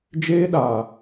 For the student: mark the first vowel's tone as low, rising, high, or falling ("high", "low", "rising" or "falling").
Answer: high